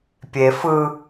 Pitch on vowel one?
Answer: low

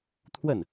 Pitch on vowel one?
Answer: falling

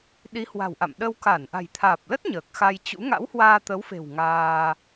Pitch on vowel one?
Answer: rising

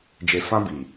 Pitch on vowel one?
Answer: low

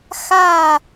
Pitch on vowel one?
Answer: falling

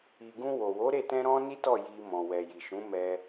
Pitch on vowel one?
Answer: low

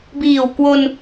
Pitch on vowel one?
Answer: low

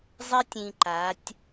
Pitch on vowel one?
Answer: high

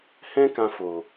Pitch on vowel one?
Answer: high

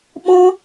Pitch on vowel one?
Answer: high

